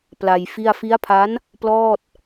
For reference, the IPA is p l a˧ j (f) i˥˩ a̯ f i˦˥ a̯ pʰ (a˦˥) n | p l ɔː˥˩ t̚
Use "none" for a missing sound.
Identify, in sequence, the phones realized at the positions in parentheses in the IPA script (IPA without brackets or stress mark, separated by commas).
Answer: f, a˦˥